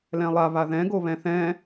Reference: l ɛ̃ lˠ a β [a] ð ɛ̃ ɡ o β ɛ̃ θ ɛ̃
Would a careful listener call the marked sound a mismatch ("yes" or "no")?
no